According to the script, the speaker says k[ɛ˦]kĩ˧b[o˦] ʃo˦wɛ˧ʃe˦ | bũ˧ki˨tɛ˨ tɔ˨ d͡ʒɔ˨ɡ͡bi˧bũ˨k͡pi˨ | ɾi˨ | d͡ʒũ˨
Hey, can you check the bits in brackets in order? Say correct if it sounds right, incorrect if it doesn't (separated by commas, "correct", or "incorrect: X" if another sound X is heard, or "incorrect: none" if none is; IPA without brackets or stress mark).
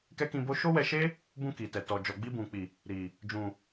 correct, correct